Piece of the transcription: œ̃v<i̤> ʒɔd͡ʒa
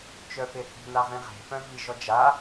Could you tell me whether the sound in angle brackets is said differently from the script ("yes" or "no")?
yes